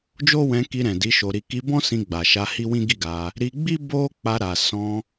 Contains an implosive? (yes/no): no